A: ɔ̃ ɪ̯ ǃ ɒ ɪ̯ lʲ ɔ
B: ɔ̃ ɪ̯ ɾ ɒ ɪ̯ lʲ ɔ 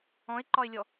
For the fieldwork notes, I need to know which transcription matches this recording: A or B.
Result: A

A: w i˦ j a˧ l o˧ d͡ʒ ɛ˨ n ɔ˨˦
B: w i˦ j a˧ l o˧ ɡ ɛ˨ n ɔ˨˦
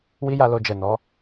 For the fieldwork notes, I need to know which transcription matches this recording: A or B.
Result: A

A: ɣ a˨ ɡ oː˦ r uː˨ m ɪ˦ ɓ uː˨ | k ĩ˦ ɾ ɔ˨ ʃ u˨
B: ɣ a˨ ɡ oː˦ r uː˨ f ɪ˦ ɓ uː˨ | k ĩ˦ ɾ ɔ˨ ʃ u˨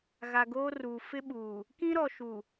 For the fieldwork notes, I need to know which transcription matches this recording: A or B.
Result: B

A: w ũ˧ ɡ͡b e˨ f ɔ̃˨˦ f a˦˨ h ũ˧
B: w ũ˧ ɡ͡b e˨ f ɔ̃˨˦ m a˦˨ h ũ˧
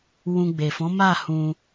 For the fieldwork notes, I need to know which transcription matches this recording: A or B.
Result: B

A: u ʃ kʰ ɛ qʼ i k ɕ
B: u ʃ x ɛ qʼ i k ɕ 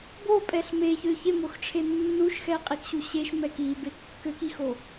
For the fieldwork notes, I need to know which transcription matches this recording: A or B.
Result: B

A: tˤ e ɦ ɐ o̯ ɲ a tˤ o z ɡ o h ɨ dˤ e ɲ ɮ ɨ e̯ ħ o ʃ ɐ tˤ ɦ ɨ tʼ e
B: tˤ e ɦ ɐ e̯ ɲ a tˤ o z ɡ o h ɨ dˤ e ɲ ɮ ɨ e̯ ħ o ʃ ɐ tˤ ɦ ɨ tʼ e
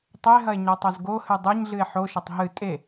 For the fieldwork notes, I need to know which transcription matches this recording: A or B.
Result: B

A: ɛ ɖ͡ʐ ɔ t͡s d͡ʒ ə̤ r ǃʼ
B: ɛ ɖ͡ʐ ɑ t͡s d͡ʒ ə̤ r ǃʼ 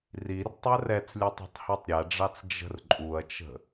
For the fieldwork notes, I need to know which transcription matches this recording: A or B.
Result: B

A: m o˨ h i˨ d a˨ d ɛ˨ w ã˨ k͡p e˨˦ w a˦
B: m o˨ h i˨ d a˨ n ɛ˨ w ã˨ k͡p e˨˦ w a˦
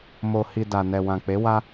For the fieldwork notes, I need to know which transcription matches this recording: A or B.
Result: B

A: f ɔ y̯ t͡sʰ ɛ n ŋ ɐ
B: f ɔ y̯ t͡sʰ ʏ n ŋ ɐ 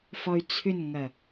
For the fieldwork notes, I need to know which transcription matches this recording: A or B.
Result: B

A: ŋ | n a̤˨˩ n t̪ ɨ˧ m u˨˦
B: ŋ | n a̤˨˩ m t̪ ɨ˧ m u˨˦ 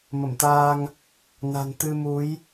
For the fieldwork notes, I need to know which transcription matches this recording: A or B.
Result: A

